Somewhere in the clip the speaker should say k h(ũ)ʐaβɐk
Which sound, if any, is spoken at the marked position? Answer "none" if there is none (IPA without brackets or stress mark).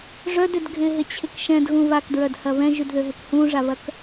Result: ũ